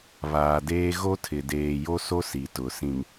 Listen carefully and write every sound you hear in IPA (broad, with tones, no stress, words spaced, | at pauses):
βaː˨deː˦ ɣo˦tʰɪ˨ deː˨jo˦so˦ si˨tʊ˨sĩ˨m